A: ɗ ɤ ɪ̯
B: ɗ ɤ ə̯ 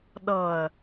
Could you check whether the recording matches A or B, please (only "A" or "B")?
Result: B